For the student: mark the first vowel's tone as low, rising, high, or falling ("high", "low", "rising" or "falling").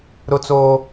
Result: high